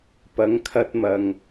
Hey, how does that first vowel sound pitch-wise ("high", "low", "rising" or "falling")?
rising